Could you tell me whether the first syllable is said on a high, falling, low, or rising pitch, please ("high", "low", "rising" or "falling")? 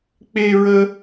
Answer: high